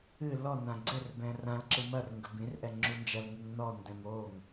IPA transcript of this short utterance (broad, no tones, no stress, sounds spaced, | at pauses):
ɨ l ɔ n ã ɡ͡ǀ ɘ r b ɛ̃ r ã l ǁ ɨ m ɐ r ŋ ɡ ɘ b ĩ r ʔ ɛ ŋ͡ǁ u n d͡ʒ ɐ l ŋ u ŋ n ɔ n d ɛ̃ m o ŋ